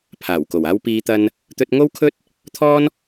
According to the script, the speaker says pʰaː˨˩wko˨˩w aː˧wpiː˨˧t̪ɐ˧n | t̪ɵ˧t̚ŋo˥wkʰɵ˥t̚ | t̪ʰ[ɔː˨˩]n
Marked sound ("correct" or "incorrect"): incorrect